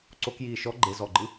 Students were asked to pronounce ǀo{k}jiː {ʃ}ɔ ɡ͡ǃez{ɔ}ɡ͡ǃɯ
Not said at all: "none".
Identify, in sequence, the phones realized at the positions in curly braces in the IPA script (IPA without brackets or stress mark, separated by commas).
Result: k, ʃ, ɔ